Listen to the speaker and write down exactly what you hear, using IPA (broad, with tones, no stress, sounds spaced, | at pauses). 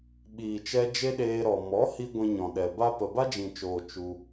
ɓ iː˨ t͡ʃ ɛ˧ d͡ʒ e˦ ɗ eː˧ ɾ ɔ˨ m ɔ˨˦ h i˧ ɡʷ ĩ˧ ɲ ɔ̃˨ ɗ ɛ˨ b a˦ p ə˨ b a˦ d͡ʒ ĩ˨ t͡ʃ oː˨ t͡ʃ u˧